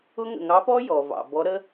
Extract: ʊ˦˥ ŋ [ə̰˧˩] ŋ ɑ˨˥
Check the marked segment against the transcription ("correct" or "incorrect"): correct